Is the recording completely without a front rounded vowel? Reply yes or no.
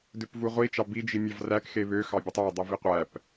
no